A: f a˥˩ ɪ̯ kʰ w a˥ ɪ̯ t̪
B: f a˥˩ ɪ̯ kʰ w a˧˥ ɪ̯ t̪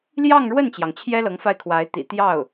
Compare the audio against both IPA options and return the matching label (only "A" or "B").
B